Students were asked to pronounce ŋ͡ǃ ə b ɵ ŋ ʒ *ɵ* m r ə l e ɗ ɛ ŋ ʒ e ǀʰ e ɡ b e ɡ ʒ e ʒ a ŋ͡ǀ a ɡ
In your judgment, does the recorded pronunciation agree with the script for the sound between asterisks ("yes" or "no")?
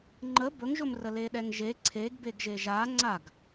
yes